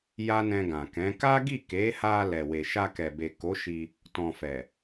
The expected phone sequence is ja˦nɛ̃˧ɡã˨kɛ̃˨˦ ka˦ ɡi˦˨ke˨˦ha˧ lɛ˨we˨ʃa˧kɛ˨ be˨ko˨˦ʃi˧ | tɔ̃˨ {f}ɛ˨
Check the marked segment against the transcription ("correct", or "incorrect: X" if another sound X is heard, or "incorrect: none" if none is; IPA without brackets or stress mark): correct